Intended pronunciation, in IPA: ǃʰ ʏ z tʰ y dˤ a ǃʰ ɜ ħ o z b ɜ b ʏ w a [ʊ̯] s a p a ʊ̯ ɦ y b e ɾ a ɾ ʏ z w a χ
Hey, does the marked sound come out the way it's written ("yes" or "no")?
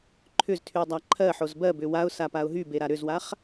yes